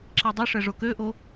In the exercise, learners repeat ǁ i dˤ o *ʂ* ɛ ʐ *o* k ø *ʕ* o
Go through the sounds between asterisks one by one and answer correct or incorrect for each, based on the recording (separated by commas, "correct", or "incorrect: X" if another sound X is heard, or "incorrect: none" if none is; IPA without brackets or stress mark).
correct, correct, incorrect: ʔ